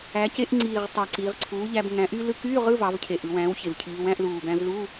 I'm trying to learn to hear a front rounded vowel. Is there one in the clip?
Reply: yes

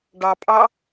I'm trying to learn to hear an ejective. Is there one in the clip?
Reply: yes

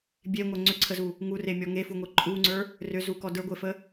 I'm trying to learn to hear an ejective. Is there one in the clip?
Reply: yes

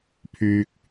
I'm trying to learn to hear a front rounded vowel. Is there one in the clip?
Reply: yes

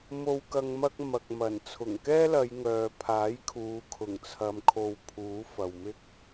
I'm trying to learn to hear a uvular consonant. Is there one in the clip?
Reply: no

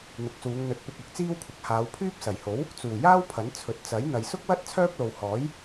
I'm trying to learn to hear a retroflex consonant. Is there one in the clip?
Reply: no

